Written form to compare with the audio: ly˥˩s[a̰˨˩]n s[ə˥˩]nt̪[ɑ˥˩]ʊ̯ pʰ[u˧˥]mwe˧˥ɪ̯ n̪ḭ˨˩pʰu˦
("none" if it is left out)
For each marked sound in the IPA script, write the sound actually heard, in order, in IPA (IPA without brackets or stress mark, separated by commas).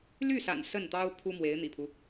a̰˨˩, ə˥˩, ɑ˥, u˥